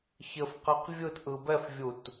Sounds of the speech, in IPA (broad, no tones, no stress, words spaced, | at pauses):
çɘfqɛq vʲɯtʔɯ bɛfvʲut